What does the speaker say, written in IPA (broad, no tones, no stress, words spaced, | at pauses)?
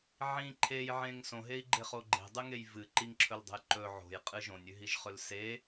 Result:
ʕĩ ǃʰejʕẽŋ sõɦei̯ɡ͡ǃeχo ɡ͡ǃe̤dˤɨŋej vɨ ǃiŋǁʰɵldˤe̤j ǃɵ ʕo̤jqʼɨ ʒõnʲʉɦiʒχɵl se